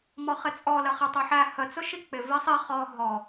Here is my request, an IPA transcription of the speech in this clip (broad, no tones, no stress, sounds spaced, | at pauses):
m ɔ χ ɪ t͡sʼ ɔ l ə χ ɪ tˤ u ħ æ h ə t͡s ʊ ʃ i k͡p ɪ v i sˤ i χ ɔ ɦ ɔ